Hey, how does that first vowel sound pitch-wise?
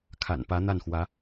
low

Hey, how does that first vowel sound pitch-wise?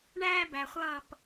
high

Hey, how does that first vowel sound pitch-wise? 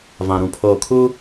low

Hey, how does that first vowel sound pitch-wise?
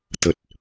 low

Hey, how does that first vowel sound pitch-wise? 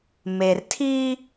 low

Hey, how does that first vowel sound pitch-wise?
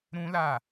high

